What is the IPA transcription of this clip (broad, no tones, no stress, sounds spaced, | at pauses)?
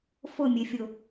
f ʊ mʲ e fʲ ʊ